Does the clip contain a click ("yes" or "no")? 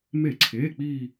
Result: yes